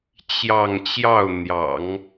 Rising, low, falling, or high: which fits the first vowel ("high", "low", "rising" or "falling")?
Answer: falling